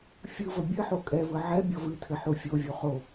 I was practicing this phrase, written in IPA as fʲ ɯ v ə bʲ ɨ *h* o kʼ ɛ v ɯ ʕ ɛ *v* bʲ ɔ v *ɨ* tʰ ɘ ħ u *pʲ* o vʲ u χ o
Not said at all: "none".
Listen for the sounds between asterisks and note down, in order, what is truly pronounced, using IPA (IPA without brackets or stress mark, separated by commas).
ħ, none, ɨ, fʲ